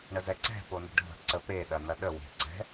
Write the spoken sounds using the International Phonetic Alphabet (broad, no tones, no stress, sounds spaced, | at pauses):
ɳ ə z ɛ ǀ ɛ̤ p o n ə̤ ɖʱ ə̤ ǀ ə p e ɗ ɐ n ɐ ɗ ə w e̤ ǀ ɛ̤